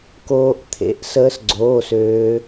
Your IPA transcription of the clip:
k oː˦˥ ʔ t̪ʰ ḛ˧˥˧ ʔ s əː˦˥ s ɡ͡ǀ oː˧˥˧ s øː˦˥

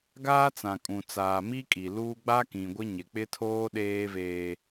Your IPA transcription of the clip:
ɡ aː˦ t͡s ã˨ kʼ ũ˨ t͡s aː˨ m i˦ kʼ i˨ l uː˦ ɡ͡b a˦ k ĩ˨ ɡʷ ɪ˦ ɲ ɪ˨ k͡p ɪ˦ tʰ oː˦ ɗ eː˦ v eː˦

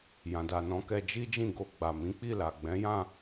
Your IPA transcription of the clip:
j ã˨ d a˨ n ɔ̃˨˦ k ɛ˧ d͡ʒ i˦ d͡ʒ ĩ˦˨ ɡ o˧ ɡ͡b a˨ m ĩ˨˦ k͡p i˦˨ l a˨ ɡ͡b ɛ̃˨˦ j ã˦˨

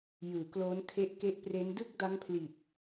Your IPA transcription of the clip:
j ɯː˨˩ k l oː˦˥ n kʰ e˦˥ ʔ k e˦˥ ʔ p r e˦˥ n d ɯ˥˩ k̚ d a˦˥ ŋ pʰ l i˨˩ t̚

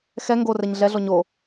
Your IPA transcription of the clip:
x ɛ ŋ ɡ o r ɛ ɲ ɮ ɛ ɮ ɔ ɲ o

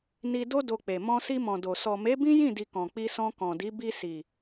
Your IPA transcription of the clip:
n i˧ d o˦ d o˧ k͡p e˨ m ɔ̃˧ s i˧ m ɔ̃˨ d o˨ s ɔ˨ m e˨˦ b ĩ˦ j ĩ˦˨ d i˨ k ɔ̃˨ k͡p i˧ s ɔ̃˧ k ɔ̃˨ d i˨˦ b i˧ s i˨

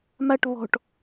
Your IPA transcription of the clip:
m a ʈ β ɔ̤ ʈ

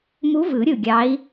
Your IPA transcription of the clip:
m u˧˥ v ɯ˨˩˦ ɾʲ ɯ˧˩ ɡʲ ɑ˧˥ i̯

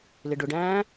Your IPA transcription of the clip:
l ɪ ɖ ʊ ɖ æ̃ː

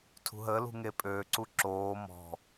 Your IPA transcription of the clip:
tʰ ṳ ɦ əː l ṳ ŋ e pʼ øː ǀ u ǁ oː m ɔ̤

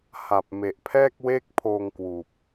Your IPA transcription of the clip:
h a˨˩ p̚ m e˨˩ ʔ pʰ ɛː˥˩ k̚ w eː˥˩ k̚ pʰ oː˧ ŋ k w uː˨˩ p̚

